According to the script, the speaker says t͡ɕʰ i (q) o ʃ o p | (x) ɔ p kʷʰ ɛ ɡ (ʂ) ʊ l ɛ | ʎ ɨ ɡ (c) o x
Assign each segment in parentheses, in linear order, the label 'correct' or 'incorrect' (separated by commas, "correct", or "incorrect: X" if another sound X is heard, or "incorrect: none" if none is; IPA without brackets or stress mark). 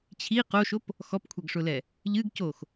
correct, correct, correct, correct